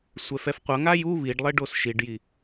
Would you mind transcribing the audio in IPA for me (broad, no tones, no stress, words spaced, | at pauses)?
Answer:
sʷɛfɛfqʷʌŋa ju βiɖlˠe ɖosʃiɖji